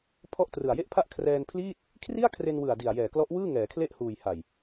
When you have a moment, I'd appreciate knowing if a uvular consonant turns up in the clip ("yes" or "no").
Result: no